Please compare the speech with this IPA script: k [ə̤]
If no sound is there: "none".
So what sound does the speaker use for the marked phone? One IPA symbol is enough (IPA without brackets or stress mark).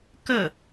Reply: ə